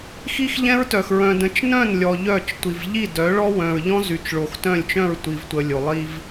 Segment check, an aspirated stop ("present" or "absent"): absent